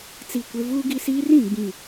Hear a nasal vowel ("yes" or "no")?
yes